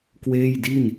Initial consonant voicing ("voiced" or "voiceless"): voiceless